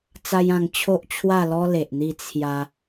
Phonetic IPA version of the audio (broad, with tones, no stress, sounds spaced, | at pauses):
t͡s a˦ j ã˧ ŋ t͡ɕʰ o˦ ʔ t͡ɕʰ w a˥˧ l ɔ˦ l e˨ ʔ n̪ i˥˧ t͡sʰ j a˧